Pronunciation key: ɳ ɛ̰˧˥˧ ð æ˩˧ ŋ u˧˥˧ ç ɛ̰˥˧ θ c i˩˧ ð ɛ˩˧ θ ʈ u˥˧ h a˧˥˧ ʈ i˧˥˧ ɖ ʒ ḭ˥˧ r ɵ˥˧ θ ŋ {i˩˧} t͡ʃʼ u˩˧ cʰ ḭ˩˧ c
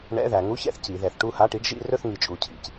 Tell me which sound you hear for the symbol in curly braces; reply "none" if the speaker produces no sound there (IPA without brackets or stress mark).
i˩˧